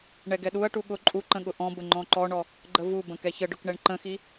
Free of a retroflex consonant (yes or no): no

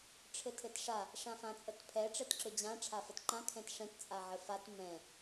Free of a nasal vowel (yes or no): no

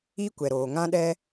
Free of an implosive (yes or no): no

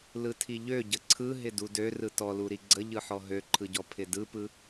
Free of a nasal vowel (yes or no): yes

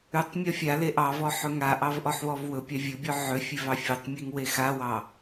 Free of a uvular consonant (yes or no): yes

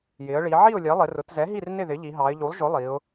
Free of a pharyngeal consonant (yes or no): no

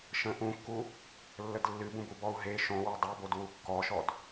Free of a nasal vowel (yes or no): no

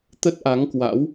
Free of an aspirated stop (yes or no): yes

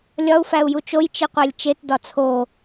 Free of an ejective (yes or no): yes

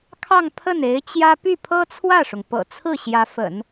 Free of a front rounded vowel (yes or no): no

